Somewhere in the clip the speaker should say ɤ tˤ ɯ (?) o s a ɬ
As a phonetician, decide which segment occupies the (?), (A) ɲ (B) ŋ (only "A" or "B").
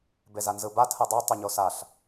A